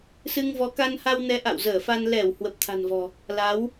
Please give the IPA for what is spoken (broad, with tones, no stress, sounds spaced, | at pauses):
s ɨ˧ ŋ v ɔ˨˦ k a˧ n h a˧ w n ɛ˨˦ ʔ a̰˧˨ w z əː˧˩ f a˧ n l ɛ˧˩ w h w ə˨˩ p̚ t̪ʰ a̤˨˩ n v ɔ̤˨˩ | l a˨˦ w